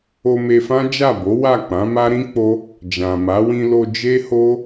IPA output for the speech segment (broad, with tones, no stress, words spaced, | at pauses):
o˧me˧fã˦ d͡ʒa˦˨bo˨˦wa˦˨k͡pã˨˦ ma˦ɾĩ˦k͡po˦ | d͡ʒã˨ma˨˦ wĩ˧lo˧ d͡ʒe˦ho˦